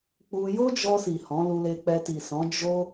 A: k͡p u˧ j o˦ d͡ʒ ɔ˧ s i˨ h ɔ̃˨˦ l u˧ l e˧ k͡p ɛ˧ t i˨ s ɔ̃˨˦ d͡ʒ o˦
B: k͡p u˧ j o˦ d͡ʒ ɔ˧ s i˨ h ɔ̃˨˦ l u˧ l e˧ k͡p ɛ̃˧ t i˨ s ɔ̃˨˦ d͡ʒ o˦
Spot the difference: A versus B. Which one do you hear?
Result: A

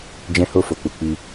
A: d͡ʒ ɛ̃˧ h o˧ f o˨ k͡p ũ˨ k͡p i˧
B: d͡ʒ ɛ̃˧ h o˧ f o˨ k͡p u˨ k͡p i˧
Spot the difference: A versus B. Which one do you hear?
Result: B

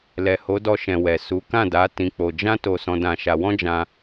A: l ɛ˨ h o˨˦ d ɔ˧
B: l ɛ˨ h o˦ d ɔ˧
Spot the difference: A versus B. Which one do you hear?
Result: A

